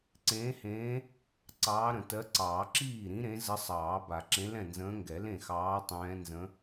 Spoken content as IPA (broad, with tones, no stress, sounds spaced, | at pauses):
ǀ ẽː˧˥ h ẽː˧˥ | ǀ ɑː˧˥ ɾ ə̃˨˩˦ t ɜ˧˥ ǀ ɑː˨˩˦ ǁ iː˥˩ ɾ ĩ˧˥ ɾ ẽ˧˥ z ə˧˥ sˤ ɑː˨˩˦ b a˨˩˦ ǁ ẽ˧˥ l ɛ̃˥˩ n z ə̃ː˧˥ ŋ ɡ ɛ˨˩˦ l ẽ˥˩ x ɑː˧˥ tˤ ɛ̃ː˧˥ n z ə̃˧˥